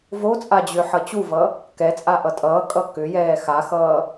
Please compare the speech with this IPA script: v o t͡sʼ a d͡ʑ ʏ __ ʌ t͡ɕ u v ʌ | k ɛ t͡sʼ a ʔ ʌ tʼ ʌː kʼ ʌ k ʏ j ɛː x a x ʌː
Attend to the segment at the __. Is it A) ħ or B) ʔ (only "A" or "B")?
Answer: A